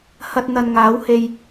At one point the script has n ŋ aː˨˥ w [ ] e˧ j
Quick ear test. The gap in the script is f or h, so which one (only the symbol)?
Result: h